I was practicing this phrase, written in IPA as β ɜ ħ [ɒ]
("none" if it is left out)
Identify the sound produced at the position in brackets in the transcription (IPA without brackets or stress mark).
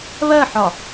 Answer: ɒ